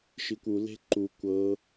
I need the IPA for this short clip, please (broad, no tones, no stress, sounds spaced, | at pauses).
ʃ i kʷ u l e̤ ǃ u kʷ ɤ